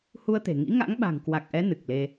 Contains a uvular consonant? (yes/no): no